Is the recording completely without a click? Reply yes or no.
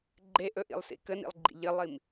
no